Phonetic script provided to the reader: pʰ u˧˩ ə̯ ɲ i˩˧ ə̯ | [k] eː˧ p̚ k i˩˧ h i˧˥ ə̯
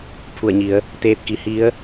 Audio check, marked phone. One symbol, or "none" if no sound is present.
t̪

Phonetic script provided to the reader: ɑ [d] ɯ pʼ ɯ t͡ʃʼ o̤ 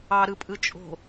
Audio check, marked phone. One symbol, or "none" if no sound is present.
ɾ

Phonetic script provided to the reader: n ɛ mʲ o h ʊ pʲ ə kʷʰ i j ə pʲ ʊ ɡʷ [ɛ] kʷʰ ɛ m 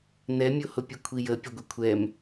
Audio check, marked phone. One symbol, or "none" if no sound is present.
ɛ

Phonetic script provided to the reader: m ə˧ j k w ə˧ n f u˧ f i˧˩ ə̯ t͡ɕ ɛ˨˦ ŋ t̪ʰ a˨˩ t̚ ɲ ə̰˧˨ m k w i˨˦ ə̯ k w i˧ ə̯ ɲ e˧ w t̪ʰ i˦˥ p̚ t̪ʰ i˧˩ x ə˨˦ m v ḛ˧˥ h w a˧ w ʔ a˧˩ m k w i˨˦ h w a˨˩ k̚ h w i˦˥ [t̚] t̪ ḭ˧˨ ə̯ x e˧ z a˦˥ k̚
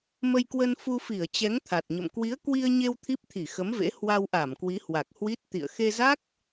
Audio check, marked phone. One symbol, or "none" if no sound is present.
t̚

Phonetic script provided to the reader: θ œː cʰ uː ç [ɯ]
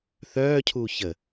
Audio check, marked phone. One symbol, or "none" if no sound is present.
ə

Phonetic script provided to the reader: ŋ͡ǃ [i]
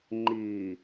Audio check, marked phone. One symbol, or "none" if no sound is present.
i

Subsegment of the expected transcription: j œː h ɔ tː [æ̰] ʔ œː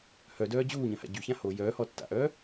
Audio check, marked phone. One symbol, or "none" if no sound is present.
a̰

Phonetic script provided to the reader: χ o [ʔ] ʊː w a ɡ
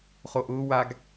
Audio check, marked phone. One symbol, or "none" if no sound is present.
ʔ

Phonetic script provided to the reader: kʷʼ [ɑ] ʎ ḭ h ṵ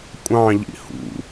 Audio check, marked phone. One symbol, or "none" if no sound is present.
ɑ̃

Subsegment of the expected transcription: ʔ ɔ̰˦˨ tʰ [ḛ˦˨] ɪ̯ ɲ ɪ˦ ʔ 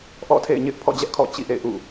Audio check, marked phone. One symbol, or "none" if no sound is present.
ḛ˦˨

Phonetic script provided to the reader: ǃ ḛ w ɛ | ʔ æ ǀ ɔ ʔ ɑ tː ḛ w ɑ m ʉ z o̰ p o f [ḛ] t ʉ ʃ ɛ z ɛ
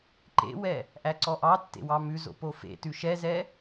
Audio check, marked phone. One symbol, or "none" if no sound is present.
ḛ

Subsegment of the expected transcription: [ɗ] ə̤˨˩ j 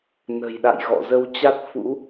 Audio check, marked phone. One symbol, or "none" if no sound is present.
n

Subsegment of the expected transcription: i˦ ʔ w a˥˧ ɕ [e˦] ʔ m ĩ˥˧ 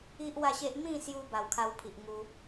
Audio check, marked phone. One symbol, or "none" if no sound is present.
e˦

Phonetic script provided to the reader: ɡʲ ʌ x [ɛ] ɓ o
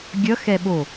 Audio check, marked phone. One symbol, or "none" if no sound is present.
ɛ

